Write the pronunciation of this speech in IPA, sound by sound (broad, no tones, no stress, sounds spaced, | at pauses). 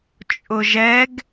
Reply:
t͡ʃʼ ʊ ʒ ɛ ɡ